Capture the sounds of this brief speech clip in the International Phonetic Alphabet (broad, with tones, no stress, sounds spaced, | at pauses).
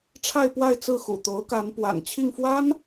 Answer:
ʈ͡ʂʰ a˥˧ ɪ̯ p w a˥˧ ɪ̯ t͡s ɹ̩˥˩ x ṵ˨˩ t̪ o˧˥ ʊ̯ k a˧˥ n p w a̰˨˩ n t͡ɕʰ i˥˩ ŋ f w a˥ n